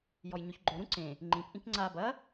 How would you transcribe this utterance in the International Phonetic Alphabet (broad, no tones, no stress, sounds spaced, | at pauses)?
j ɔ j ɲ o ç ɡ͡ǃ o ɾ ũ ǀ ẽ | ŋ͡ǃ ĩ p ʔ ĩ k ŋ͡ǀ a b ɐ